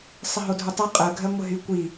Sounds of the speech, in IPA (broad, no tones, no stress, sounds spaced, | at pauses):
sˤ ə ɦ o dʱ u tˤ ɜ qʼ ɜ ɡʱ ɜ ŋʷ ə ɦ y kʷ i